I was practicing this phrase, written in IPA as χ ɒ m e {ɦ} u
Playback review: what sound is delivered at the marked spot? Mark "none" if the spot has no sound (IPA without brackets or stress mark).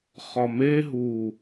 ɦ